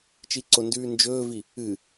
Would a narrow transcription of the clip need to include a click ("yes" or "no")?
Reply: yes